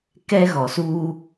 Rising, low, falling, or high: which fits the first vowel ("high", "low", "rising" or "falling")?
high